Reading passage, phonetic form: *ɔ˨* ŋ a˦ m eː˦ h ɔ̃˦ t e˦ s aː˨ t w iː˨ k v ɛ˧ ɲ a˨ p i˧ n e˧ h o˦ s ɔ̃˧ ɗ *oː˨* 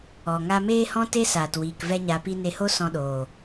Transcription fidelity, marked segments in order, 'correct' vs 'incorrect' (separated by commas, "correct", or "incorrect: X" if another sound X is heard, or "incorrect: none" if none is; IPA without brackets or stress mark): correct, correct